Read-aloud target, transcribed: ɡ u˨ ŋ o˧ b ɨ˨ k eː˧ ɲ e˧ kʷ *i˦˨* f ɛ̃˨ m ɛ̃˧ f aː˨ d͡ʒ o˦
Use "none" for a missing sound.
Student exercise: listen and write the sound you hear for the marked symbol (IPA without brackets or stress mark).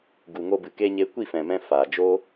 i˦˨